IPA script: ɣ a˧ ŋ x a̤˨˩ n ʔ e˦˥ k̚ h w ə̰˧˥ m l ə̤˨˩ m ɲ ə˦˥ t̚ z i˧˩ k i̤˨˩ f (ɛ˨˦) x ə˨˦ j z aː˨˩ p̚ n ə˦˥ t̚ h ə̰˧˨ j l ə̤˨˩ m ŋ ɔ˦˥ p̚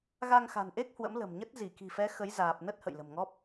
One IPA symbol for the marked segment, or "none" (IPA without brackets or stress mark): ɛ˨˦